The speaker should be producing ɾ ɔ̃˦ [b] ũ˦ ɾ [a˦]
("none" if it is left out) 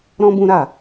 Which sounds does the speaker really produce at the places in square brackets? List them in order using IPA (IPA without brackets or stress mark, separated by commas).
b, a˦˨